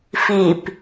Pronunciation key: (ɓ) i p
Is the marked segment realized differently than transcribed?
yes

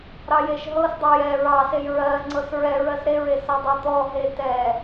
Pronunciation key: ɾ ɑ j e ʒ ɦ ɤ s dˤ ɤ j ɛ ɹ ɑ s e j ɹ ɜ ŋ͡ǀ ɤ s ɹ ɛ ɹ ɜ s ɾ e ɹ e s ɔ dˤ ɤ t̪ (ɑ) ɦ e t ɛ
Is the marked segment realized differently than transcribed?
yes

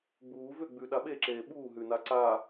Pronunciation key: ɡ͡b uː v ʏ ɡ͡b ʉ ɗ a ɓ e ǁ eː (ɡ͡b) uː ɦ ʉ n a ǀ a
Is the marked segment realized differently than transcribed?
yes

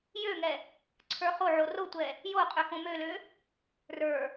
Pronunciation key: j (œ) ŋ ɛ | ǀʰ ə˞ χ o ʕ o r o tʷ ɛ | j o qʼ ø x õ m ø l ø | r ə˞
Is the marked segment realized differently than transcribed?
yes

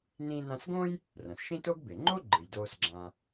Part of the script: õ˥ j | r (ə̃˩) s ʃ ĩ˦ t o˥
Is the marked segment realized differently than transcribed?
yes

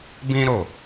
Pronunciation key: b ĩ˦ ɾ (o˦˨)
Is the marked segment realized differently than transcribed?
no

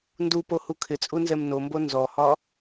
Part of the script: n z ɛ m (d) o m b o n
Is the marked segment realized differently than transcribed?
yes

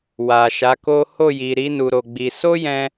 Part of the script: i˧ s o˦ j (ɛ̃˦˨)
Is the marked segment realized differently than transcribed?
yes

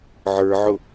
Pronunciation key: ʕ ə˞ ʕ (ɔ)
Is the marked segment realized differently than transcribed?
yes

